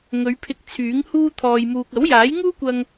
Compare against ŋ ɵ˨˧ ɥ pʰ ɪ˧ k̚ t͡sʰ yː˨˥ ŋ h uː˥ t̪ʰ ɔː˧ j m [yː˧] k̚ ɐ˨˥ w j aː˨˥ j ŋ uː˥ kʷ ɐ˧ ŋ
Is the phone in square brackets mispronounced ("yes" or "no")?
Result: yes